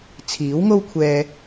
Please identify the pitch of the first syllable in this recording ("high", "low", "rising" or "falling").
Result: rising